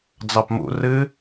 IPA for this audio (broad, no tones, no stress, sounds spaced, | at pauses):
d͡z ɑ p m ṵ r ɨ